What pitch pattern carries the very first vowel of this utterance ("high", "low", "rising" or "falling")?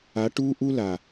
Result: rising